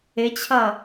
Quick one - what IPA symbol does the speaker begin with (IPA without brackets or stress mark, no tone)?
ɪ